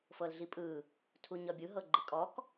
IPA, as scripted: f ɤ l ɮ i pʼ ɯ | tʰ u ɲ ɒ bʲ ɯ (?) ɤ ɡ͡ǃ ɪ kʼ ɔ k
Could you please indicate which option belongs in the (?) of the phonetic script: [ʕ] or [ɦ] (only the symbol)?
ɦ